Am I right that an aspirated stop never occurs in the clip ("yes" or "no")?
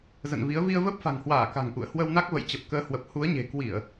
yes